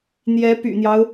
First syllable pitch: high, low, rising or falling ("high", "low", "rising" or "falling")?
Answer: rising